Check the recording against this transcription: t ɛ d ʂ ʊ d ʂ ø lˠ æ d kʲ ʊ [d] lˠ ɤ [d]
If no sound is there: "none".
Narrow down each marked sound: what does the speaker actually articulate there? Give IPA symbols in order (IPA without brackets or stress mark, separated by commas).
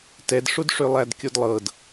d, d